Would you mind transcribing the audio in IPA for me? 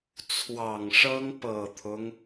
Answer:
t͡sʰwɑ˨˩ŋʂɤ˥ŋ pɤ˨˩t̪ʰʊ˦ŋ

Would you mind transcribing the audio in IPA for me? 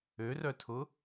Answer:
ørœtʰʊ

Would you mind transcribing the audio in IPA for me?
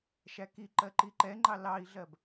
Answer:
ʃækiǃɜ ǃiǃɛŋ͡ǃɑ lɑi̯ɮɜb

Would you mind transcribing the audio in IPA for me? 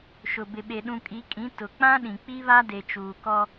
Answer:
ʃʊ˨ bɪ˨ɓe˨ ɗũ˨kʼi˨˦kʼĩ˨˦ tʊ˨k͡pã˦ɗĩ˨ k͡pi˦βa˦de˨ t͡ʃuː˨kɔ˦

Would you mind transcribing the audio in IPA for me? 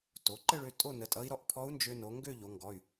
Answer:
to˩˧ǃə˥˧ɭø˧ tʼo˥˧nə˩˧˩tʼʌ˧˥i̯ ɾɔ˧ʔ pʰɔ˧˥u̯nd͡ʒø˧ no˩˧ ŋɡø˥˧ʎo˩˧ŋɡɔ˩˧˩y̯

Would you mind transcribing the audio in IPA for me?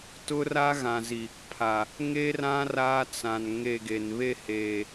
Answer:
tʊ˦ra˦ɣã˨zi˨ | pʰa˨ | ŋe˦rã˦ raː˦t͡sã˨n ŋe˦˨ɡe˨n βe˦˨heː˨

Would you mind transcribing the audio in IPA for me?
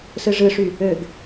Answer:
sɯʐɯʂy | øɡ

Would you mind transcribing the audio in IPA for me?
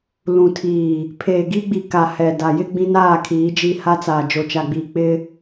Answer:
lũ˨tʰiː˨ | pʰeː˨ɡi˦ɡ͡bi˨ka˨ hɛ˨da˨jɪ˦ ɡ͡bĩ˦naː˦˨kʰiː˨˦d͡ʒi˦˨ ha˦t͡saː˨ d͡ʒo˨t͡ʃa˨ɡ͡biː˨ k͡pɪ˦

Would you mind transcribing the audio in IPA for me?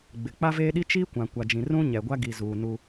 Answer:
ɡ͡bɪ˨ k͡pa˦veː˦ɗi˦ t͡ʃiː˦kʷã˨ kʷa˨d͡ʒĩ˨ rũ˦ ɲɛ˨ɡʷa˦ ɡi˨zuː˨ nu˦

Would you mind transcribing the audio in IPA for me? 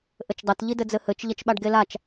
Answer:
ʔɘt͡ʃdˤɐt ʎidɘd͡zɘhɘt͡ʃ ʎɐt͡ʃɓaɖɡelat͡ʃ

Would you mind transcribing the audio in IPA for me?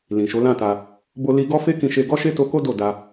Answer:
lĩ˨ʃo˨˦lã˦˨ta˧ | bo˧li˧ ɡɔ˦fe˦kĩ˧ʃe˧ ɡɔ˦ʃe˦to˧ko˦ do˦˨da˧

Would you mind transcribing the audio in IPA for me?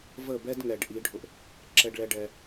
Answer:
və˦˨bɛ˦d ŋɛ˨ɖ ʔi˨˦ɖʱʊ˧ʔ | ǁɛ˦ɖɭɛ˦ ɖɛ˧

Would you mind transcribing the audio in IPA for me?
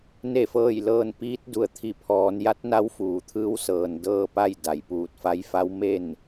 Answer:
ne˥˨fɤː˥˨jlɤː˥˨n piː˧˥t̚du˩˧ə̯t̪ʰi˧˩ pʰɔː˩˧nja˧˥t̚ na˧˥wfuː˩˧t̪ʰɯː˧˥w sɤː˩ndɤː˥˨pa˥˨j da˩˧jpuː˧˩t̚fa˧˥j fa˧˥wme˥˨n

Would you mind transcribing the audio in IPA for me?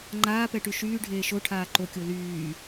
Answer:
ŋ͡ǃaːpɛʈy ʃyːɖʱeː ʃoʈʰaː ǃokʲo lyː

